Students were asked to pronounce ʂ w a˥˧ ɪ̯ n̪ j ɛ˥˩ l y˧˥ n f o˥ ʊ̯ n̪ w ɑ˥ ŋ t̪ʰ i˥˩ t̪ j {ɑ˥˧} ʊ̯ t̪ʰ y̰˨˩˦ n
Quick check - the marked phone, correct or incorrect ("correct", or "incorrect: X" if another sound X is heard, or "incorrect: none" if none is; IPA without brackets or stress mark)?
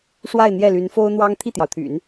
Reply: incorrect: ɑ˩